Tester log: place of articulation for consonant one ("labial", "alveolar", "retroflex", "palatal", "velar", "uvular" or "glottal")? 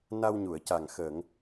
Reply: alveolar